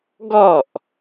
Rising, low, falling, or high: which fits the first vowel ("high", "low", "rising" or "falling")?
falling